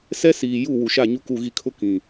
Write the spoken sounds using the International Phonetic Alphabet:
s ɛ˦ s iː˨ j u˦˨ w u˨ ʃ a˦˨ ɲ u˦ k u˦˨ ɣ i˦ kʰ ʊ˦ k ĩ˨

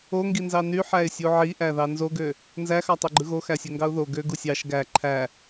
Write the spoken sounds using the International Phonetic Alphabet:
o ŋ ɡ i n z ɑ n y ħ æ ɪ̯ sʲ u ʕ i ʔ æ ð ɑ n z o ɡ ø | n z æ x ɑ tˤ ø ɡ͡ǃ ɯ ɣ o x æ sʲ ø ŋ ɡ ɑ ʊ̯ ð o ɡ ø ɡ u sʲ ɑ ʃ ɡ æ ǃʰ æ

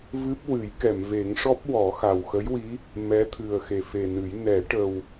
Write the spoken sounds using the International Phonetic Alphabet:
v ɨ˦˥ p̚ w ɨ˨˩˦ j k ɛ˨˩˨ m v e˨˩˦ ŋ ʂ ɔ˦˥ p̚ w ɔ˨˩˦ x a˨˩ w x ə˧˥ j w i˧˥ | m ɛ˧˥ t̪ʰ ɨ˨˩ ə̯ x e˨˩ f e˨˩ n ɨ˨˩˦ j n ɛ˨˩˦ ʈ ə˨˩ w

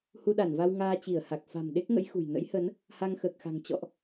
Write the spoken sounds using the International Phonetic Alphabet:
h u˧ ɗ a˧˩ n v a˧ w ŋ aː˧ t͡ɕ i˧˩ ə̯ h a˨˩ k̚ f a̤˨˩ m ɗ e˦˥ k̚ ŋ ə̰˧˥ j x ṳ˨˩ j n ə̰˧˥ j h ə˨˦ n | h a˧ ŋ x əː˨˩ k̚ x a̤˨˩ ŋ t͡ɕ ɔ̰˧˨ ʔ

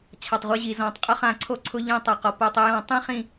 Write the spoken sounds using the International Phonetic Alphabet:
t͡ɕʰ a˩ tˤ ʁʷ ɪ˧ ʑ i˩ z ɔ̃˩ tˤ qʼ ʊ˧ χ ã˧˩˧ ǀʰ o˧ ǀʰ ʊ˧ ʎ ĩ˧˩ tˤ a˩ q ɔ˩ p o˧˩ tˤ ɪ˧ j ɔ̃˧˩˧ tˤ ĩ˧ χ ĩ˧˩

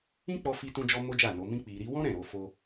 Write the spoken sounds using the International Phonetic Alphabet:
ĩ˦ k͡p ɔ˧ f i˧ t ũ˧ d͡ʒ ɔ˦ m o˦ d͡ʒ a˦˨ n o˨˦ m ĩ˦ k͡p i˧ ɾ i˦ w ɔ̃˦ ɾ ɛ̃˦˨ ɾ o˨˦ f o˦

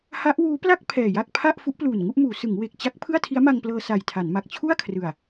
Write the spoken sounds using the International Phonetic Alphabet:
h a˦˥ ʔ w uː˦˥ p l a˥˩ k̚ pʰ ɛː˨˩ j a˥˩ k̚ pʰ a˥˩ ʔ f u˦˥ ʔ p l uː˨˩ n ŋ u˥˩ ʔ m uː˩˦ s ɯ˩˦ ŋ w e˨˩ k̚ t͡ɕ a˦˥ k̚ pʰ ɯ˥˩ a̯ tʰ i˦˥ a̯ m a˧ ŋ p l ɤː˧ s a˨˩ j tʰ a˩˦ n m a˨˩ k̚ t͡ɕʰ u˥˩ a̯ kʰ r ɯ˨˩ a̯

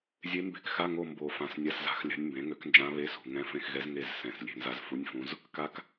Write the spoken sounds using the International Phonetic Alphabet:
zʲ e˧˥ m b e̤˦˨ k x a˧˥˧ ŋ o˦˨ m b o˨˩ f ã˨˩ s nʲ a˧˥˧ s z a̤˧˥ x lʲ a̤˧˥ nʲ m b ẽ˩˥ ŋ ø˩˥ k n d͡ʒ ã˧˥ β e˧˥˧ s ṳ˨˩ ŋ ɛ̃˧˥˧ f ẽ˦˨ x ɣ ɛ˧˥ z ŋ e˦˨ z s ɛ̃˨˩ s lʲ e̤˦˨ n z a˧˥ z f u˧˥˧ nʲ f ũ˧˥ z | k a˧˥ k

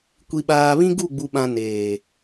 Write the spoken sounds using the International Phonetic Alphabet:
kʷ i˨ ɓ aː˨ β ĩ˦ ɡ u˦˨ ɡ͡b u˨ ɓ ã˨ n eː˨

